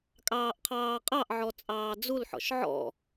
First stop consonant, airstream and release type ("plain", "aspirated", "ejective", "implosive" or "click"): ejective